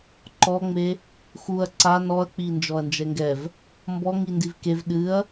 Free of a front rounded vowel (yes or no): yes